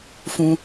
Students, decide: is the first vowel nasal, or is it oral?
nasal